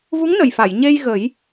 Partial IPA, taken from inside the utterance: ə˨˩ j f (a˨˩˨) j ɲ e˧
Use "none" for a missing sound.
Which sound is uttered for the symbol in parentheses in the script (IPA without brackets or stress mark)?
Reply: a˨˩˨